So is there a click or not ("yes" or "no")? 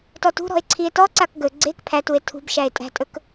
yes